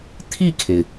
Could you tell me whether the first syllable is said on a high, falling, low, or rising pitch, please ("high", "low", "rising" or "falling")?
falling